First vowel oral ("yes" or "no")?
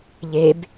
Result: yes